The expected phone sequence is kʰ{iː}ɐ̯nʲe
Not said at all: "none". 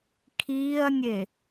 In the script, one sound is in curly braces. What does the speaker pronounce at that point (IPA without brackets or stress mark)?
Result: iː